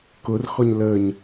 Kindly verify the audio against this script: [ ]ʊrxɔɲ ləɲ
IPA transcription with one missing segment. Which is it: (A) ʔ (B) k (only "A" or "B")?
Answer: B